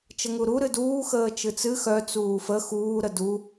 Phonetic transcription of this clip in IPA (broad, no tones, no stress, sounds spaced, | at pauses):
t͡ʃ ə ŋ u ɾ u ɾ ɨ d uː x əː t͡ʃ ɨ t͡s ɨ x œ t͡s uː f ə x uː ɾ ə d u